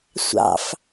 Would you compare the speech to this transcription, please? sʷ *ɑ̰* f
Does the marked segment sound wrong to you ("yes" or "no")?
no